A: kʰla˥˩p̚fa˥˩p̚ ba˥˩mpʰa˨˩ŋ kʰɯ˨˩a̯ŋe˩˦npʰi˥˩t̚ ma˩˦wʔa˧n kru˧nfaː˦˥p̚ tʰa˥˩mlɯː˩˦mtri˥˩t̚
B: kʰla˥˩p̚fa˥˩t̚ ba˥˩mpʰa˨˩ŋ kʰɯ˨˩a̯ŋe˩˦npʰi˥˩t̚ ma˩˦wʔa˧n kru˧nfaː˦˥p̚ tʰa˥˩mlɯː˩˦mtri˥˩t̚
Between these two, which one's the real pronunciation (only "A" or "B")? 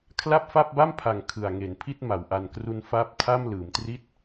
A